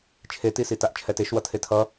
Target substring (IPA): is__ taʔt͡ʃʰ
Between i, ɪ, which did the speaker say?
i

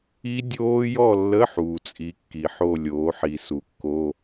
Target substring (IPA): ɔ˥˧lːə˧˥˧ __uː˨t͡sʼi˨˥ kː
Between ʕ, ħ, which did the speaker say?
ħ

